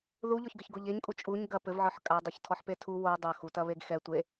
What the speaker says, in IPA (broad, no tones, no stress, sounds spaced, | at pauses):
ð u ʎ ɔ ç ɡ ɘ ç ɡ o ʎ e ɲ kʼ u t͡ʃʼ u ɲ ɡ ɐ p ɘ v ʕ ɔ ħ kʼ a dˤ ɯ ç tʰ ɔ ħ p e tʰ u w o dˤ ɐ x u t ɐ β e ɡ x ɛ tʷ e